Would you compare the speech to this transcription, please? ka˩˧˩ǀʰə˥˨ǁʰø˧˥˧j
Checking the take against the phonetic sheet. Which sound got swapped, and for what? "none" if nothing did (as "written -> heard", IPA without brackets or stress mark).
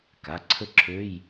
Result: none